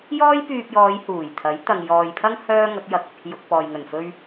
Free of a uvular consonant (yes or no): yes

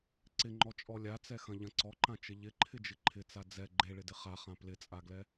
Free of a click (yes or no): no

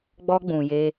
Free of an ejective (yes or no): yes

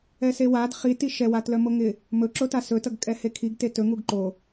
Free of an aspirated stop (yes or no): no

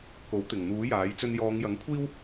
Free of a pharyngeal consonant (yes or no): yes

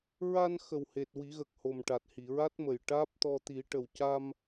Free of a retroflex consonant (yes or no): no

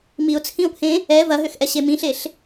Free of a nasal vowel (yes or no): no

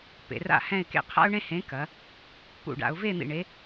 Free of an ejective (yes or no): yes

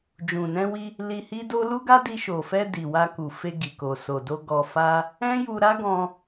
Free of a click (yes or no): yes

